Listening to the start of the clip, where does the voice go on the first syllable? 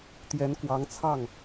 rising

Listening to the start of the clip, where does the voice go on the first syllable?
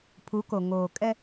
rising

